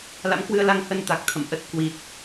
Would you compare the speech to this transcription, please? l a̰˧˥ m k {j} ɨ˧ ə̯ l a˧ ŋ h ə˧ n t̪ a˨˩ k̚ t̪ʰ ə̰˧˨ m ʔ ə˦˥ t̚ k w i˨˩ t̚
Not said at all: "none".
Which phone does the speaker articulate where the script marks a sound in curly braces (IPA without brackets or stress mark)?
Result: w